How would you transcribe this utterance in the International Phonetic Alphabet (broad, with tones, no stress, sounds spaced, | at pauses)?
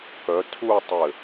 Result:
k œ˩˧ tʰ u˥˧ tˤ ɘ˧˩